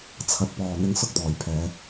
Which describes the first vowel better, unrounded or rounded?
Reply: unrounded